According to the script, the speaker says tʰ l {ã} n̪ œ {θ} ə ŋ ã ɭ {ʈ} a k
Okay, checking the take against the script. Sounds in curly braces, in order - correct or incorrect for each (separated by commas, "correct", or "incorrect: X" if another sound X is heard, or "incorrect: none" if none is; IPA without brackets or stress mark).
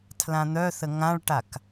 correct, correct, correct